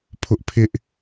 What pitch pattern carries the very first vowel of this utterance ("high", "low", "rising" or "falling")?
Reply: high